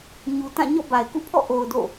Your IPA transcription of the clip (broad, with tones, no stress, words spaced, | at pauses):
ɲu˨tã˦˨ ɲɔ̰˦˨ba˨ɪ̯kṵ˦˨ pʰɔ̰˦˨ʔo˨ʊ̯ do̰˦˨